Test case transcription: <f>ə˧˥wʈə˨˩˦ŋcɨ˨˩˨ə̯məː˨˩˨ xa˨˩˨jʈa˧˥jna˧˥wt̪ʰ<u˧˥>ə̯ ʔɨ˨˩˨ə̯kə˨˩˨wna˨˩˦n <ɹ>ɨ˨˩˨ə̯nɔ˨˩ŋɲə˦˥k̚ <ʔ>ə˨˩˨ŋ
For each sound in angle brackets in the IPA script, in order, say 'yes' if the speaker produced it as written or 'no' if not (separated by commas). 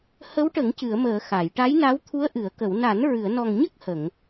no, yes, yes, no